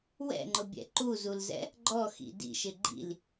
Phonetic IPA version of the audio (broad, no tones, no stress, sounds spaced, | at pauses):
w ɛ̰ ŋ͡ǃ ʊ bʲ ɛ̰ ǃ u z u l z ɛ̰ | ɡ͡ǃ ɔ x ḭ d ḭ ʃ ɪ ɡ͡ǃ ḭ l